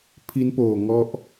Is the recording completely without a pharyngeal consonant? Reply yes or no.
yes